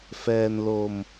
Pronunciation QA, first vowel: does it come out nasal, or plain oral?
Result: oral